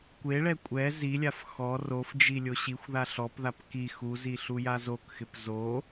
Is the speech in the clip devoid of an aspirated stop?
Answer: yes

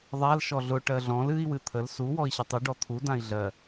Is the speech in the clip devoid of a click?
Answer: yes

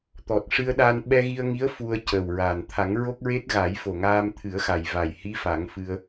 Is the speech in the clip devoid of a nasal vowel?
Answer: yes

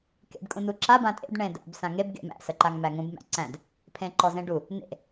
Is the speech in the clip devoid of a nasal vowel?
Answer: no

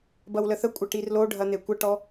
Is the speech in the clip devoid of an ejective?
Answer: no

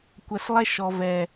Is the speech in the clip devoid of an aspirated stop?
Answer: yes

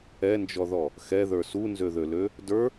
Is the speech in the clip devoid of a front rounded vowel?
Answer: no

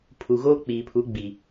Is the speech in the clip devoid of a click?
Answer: yes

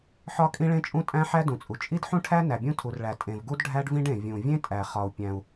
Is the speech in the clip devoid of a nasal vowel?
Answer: no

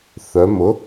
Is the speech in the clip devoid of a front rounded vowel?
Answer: no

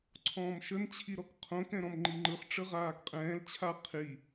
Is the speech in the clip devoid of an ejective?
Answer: no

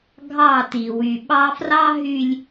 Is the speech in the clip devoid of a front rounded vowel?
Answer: no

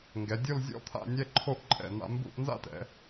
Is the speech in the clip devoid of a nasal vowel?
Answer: yes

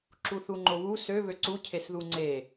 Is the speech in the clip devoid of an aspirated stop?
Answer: no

